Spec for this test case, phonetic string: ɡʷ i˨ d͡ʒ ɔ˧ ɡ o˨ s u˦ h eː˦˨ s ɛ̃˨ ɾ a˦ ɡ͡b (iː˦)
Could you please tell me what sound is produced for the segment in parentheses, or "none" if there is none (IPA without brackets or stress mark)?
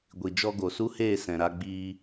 iː˦